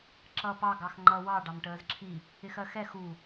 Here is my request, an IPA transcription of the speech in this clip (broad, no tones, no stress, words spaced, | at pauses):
ǁʌːpɑ ɡɑxŋ͡ǃʌ wɑ ɖɑmʈəːzǁʰi | ɪxɜxɛ xu